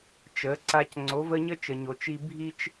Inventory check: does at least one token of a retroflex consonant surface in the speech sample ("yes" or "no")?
no